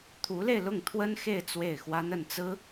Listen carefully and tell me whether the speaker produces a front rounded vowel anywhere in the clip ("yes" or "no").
no